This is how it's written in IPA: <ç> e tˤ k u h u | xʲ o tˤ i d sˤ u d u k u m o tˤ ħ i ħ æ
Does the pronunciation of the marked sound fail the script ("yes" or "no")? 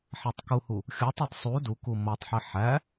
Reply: yes